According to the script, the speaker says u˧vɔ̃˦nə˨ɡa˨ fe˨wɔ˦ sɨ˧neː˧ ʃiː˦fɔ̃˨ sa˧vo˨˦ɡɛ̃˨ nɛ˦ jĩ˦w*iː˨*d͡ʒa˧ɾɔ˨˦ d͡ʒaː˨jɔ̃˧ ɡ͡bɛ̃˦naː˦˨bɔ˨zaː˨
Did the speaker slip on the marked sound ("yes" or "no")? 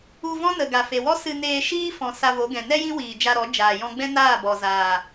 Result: no